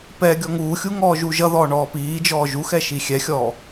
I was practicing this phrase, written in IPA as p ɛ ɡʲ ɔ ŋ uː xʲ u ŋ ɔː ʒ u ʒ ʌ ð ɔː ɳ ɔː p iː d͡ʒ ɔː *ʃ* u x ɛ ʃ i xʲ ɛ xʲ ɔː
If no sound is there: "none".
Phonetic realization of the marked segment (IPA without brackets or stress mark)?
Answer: ʒ